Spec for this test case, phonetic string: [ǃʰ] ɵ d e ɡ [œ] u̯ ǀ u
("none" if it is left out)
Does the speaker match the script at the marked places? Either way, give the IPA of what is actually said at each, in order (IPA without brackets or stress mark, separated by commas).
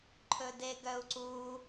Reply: ǃʰ, œ